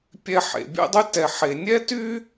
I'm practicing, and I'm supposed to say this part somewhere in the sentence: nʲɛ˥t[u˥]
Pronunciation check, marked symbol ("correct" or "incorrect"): incorrect